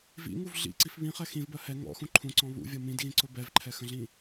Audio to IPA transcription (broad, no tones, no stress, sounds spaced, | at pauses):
v ḭ ŋ u v ɮ ḭ ǀ i f β ĩ χ ɛ x ĩ v b ɜ h ɛ ŋ ɔ̰ x ũ ǃʰ ũ ǀ ɔ̃ β ṵ vʲ ʌ m ĩ d ɣ ĩ ǀ ʊ b ɛ v ǃʰ ɛ x ə̃ ɮ ĩ